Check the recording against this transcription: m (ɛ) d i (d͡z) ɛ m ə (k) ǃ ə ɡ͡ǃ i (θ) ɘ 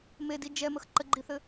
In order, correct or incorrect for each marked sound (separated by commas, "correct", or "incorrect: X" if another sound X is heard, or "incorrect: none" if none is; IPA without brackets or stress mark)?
incorrect: e, incorrect: d͡ʒ, incorrect: x, correct